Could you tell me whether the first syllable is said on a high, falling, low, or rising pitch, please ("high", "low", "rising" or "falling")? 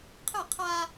falling